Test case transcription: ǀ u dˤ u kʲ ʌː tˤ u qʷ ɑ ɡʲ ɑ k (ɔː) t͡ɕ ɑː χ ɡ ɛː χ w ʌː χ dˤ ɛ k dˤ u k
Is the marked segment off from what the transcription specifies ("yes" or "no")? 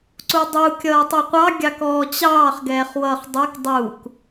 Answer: no